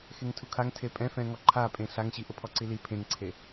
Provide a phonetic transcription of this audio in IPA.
xeŋtʰukʰaŋ tʰepʼɛ̃ fɛ̃ŋɔǃʰapʼẽ ɬaŋɕiʔʊ pʰɔǀili pʰẽŋǀʰe

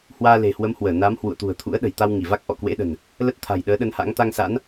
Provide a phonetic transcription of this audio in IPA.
hwaː˧le̤˨˩hwə˨˦mhwəː˧˩ na˨˦m hwṵ˧˨ə̯t̪ṳ˨˩ə̯t̪ʰṵ˧˥ə̯ ɗə̤˨˩jt̪a˧wŋi˧˩va˦˥k̚ ʔɔ̰˧˨kwḛ˧˥ɗə̤˨˩n | lə˦˥t̚t̪ʰa̤˨˩jɗəː˨˦ ɗə˧nha̰˧˥ŋ t̪a˧ŋsa̰˧˥n

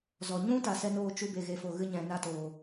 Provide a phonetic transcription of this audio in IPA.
zɔ˨ ɲũ˦ ta˧sɛ˦ noː˦t͡ʃu˦ be˨ɣe˨fo˨ ɣɨ˦ɲɛ̃˨ na˦toː˨

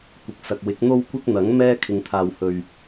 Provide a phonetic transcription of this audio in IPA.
kʷɪ˨k̚sɐ˨k̚wɪ˨˥k̚ n̪o˧wkʷɪ˧k̚ n̪ɐ˨˥ŋ mɛː˥ kʰɪ˨ŋt̪ʰaː˨whɵ˨ɥ

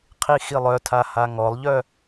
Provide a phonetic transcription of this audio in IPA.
qʰixilˠœtʰa haŋɔlˠʎœ

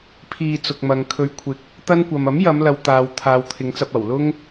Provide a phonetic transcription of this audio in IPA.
pʰiː˧t͡sʊ˨k̚mɐ˨ŋ kʰɵ˨˧ɥkʷʰɪ˨k̚ | t̪ɐ˥nkʷɐ˨m ɐ˨˥mjɐ˨˧mlɐ˨w t̪aː˨w t̪ʰaː˨˧wt̪ʰɪ˨˧ŋt͡sɐ˧p̚ ɐ˨˩wlʊ˥ŋ

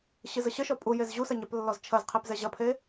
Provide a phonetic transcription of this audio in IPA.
ɕɨzəɕəʃɔ pʼujez ʑusɐ ɲɛplːɔzt͡ʃʰɐzqʰep zɛʑɐpʰe

